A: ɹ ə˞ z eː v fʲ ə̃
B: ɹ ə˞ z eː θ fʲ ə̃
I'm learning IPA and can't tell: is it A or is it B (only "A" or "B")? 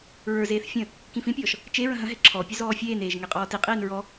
B